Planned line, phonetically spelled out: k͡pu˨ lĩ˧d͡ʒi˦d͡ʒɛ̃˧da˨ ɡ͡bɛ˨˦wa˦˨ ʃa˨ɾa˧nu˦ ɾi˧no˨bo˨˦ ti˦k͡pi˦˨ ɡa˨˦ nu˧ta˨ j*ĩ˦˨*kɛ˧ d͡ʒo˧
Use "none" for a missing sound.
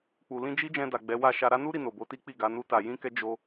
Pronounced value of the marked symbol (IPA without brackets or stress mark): ĩ˧